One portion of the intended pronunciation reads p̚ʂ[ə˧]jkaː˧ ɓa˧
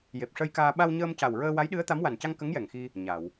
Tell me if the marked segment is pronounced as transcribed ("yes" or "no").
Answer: yes